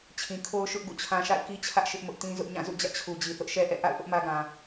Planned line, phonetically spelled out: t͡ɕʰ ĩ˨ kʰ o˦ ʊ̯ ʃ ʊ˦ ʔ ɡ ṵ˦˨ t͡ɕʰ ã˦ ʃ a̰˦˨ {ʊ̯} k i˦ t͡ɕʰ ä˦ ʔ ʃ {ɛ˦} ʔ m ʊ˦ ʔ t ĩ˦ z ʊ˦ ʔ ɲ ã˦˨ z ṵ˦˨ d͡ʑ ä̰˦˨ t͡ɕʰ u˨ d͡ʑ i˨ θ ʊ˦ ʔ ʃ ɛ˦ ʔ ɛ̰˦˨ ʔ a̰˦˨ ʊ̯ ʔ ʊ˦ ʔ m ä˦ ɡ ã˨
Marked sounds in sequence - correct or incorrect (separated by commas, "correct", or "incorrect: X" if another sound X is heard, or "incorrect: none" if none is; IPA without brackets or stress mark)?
incorrect: ɪ̯, incorrect: ɪ˦